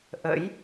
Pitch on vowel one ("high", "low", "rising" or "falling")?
rising